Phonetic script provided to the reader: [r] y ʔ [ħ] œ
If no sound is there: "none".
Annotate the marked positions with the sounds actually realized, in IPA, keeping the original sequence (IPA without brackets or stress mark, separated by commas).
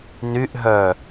n, ɦ